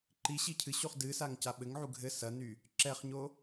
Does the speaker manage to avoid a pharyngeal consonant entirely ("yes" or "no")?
no